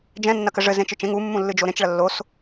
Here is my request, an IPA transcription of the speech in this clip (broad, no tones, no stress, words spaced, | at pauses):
d͡ʒɛ̃ nːɐkɘʐɘ zẽt͡ʃɨt͡ʃẽ ŋu mːũlːɨd͡ʒoɾẽt͡ʃ ɭɐlːos